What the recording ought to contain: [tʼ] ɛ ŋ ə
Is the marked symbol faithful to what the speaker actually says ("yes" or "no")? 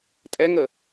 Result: yes